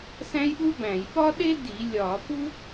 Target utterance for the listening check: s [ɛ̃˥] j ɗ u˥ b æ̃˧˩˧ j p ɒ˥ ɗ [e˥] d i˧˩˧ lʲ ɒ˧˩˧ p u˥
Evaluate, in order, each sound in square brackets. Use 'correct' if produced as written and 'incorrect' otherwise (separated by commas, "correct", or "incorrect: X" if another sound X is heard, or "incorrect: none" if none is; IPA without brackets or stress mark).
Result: incorrect: æ̃˥, correct